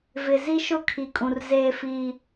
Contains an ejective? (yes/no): yes